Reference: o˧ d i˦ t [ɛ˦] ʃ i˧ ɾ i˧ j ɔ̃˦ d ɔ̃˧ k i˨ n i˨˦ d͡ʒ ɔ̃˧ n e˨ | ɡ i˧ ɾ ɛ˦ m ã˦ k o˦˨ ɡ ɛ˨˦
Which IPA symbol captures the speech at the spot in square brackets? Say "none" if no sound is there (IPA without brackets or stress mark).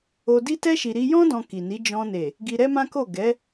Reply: ɛ˦